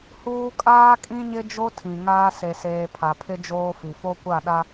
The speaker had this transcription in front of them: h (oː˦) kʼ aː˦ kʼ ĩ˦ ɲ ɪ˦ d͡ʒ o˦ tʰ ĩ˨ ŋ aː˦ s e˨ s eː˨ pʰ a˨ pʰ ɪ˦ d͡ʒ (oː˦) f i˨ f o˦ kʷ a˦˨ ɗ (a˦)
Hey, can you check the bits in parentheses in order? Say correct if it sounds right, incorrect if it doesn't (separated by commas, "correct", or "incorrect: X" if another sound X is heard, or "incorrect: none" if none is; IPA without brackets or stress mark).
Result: incorrect: uː˦, correct, correct